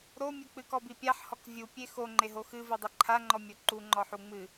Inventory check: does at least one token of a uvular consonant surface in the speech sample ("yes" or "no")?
no